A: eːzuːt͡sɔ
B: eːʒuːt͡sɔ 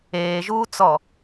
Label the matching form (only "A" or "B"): B